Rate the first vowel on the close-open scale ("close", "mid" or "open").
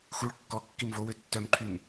close